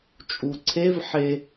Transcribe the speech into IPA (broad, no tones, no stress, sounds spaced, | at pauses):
t͡ʃʼ u ǀʰ e v ħ e